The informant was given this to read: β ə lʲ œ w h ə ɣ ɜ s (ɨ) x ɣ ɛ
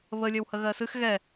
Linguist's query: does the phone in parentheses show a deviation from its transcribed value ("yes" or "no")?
no